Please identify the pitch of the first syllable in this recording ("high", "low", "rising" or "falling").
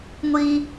high